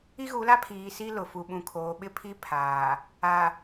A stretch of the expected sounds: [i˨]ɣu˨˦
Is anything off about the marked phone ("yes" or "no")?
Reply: yes